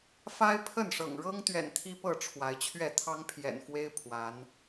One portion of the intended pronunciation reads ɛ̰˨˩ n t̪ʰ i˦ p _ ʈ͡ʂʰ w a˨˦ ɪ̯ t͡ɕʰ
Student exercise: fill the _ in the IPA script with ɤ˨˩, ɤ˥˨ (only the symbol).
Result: ɤ˥˨